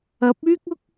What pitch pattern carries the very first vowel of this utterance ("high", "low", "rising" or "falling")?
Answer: rising